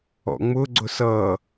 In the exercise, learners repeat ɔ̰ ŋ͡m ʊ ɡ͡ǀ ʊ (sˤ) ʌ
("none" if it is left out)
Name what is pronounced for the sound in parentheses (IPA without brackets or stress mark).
s